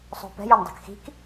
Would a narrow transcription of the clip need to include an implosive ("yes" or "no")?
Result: no